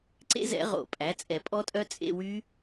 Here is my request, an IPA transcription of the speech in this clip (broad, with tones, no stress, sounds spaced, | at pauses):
ǀ ḛ˦˥ z ɛ̰˨˩˦ ʁ o̰˨˩˦ pʼ æ˩˥ t͡sʼ ɛ˨˩˦ pʼ ɔ˦˥ tʼ œ˦˥ t͡sʼ ḛ˧˥˧ w y˦˥